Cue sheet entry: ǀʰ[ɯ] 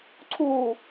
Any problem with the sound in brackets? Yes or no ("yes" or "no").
yes